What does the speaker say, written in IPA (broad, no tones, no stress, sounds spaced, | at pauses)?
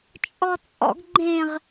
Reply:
t͡ʃʼ ɔ t͡sʼ ɔ̰ ɡ ɡ͡ǃ ẽ ʁ